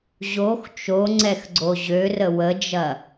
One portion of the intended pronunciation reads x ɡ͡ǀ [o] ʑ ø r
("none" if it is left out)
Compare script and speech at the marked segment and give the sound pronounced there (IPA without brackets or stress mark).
o